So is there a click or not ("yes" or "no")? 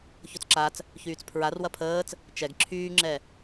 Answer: yes